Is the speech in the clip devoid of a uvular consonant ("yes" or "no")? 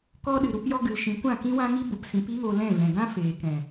yes